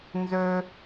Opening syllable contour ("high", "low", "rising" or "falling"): high